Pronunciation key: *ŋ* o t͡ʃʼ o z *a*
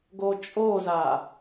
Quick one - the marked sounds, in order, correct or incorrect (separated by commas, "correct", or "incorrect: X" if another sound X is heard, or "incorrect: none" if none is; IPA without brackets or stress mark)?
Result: incorrect: ɡ, correct